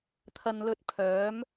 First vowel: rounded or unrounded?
unrounded